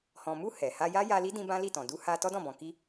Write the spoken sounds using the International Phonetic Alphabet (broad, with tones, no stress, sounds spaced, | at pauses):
h ɔ̃˨ m u˧ h ɛ˨ h a˧ j a˦ j a˧ l i˦ d ĩ˦ b ã˦ l i˦˨ t ɔ̃˨ d u˧ h a˧ t ɔ˦ d ɔ̃˦˨ b ɔ̃˨ k i˧